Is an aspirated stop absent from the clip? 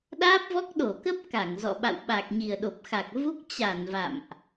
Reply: yes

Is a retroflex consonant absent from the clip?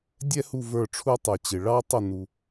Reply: no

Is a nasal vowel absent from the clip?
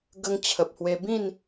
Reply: no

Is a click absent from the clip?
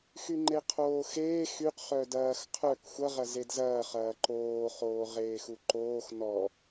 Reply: no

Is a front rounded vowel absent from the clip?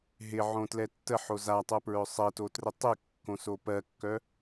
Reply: no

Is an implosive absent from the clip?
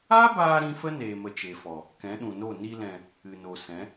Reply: no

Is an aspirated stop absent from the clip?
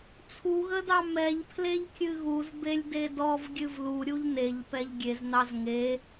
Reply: no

